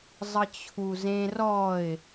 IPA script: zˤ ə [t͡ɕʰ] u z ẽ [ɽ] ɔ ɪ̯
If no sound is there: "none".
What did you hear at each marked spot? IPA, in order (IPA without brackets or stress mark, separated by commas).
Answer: t͡ɕʰ, r